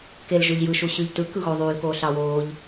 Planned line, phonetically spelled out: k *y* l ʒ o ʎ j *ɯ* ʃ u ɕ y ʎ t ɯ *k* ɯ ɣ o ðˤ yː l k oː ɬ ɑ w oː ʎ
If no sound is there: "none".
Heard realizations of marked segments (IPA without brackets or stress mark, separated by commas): e, ɯ, k